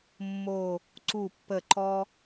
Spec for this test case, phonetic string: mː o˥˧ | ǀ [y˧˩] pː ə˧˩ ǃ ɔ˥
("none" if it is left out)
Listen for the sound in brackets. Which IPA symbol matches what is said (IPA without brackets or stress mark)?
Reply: u˧˩